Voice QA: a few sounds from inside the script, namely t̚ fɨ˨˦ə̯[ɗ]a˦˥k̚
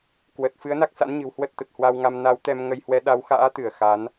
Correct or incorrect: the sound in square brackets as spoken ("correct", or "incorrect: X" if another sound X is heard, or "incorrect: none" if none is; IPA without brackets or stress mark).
incorrect: n